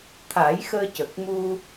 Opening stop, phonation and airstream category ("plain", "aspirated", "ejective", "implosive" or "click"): aspirated